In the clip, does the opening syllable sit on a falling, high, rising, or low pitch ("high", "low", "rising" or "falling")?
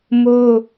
high